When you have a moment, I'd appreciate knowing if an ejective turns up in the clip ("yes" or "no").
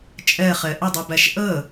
yes